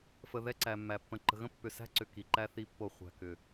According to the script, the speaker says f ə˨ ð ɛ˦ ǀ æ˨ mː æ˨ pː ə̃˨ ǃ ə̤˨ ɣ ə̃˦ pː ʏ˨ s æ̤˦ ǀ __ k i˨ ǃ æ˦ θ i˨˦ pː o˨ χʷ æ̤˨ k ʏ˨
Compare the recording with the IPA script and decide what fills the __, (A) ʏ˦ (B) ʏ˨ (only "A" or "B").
B